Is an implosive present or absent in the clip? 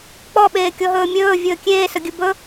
present